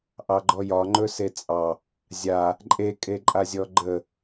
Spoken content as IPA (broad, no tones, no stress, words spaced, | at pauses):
ʔɑɡ͡ǃɔjɒ ŋ͡ǃɵset͡sʼɑ | zʲa | ǃʼekʼeǃʼazʲɔ ɡ͡ǃə